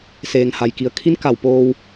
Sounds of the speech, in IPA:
s eː˩ ŋ h a˩ j k i˩˧ ə̯ kʰ i˧˥ n k a˧˩ w p oː˧ w

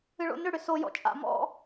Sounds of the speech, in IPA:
ɨ ɭ o̰ n ʏ ɽ ʏ s o j ɔ̰ t͡ʃʼ a̰ m ɔ̰

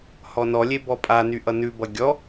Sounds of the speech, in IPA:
h ɔ n ɔ lʲ e b ɔ pʼ a n y ʔ ʌ n ʉ b ʌ ɡʲ ɔ

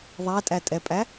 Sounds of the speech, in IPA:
ðˤ æ tʼ æ tʼ ɛ pʼ æ

